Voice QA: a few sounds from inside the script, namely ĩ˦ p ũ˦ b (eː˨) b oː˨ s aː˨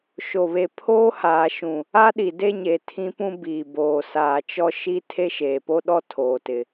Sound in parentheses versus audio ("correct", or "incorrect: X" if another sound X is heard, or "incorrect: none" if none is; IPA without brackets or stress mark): incorrect: iː˨